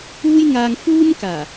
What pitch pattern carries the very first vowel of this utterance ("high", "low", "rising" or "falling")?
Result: high